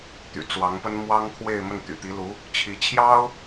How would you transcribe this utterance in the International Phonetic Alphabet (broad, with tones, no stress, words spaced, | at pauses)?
t̪y̰˨˩t͡swɑ˧˥ŋpə˥n mwɑ˥ŋkʰwe˥˧ɪ̯mə˥˩n t̪y̰˨˩t̪i˧˥lu˧˥ | t͡ɕʰi˧˥ t͡ɕʰjɑ˥ʊ̯